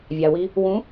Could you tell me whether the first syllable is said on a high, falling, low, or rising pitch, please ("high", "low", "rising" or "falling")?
low